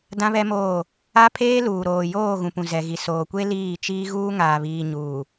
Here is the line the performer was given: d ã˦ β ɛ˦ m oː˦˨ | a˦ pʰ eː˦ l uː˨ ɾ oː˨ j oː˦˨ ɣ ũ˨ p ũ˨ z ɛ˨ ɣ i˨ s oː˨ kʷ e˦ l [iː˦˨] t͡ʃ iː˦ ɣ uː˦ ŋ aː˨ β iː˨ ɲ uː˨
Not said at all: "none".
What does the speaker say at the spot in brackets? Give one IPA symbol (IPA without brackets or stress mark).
iː˦˨